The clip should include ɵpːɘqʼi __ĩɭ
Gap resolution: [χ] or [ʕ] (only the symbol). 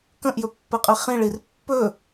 χ